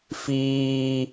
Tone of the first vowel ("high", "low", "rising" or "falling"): high